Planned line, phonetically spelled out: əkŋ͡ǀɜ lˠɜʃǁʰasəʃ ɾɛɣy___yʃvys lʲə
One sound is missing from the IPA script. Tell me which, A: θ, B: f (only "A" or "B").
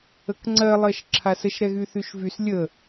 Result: A